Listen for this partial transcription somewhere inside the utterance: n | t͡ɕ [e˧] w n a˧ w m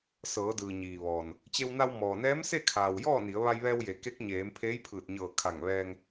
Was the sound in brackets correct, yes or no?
yes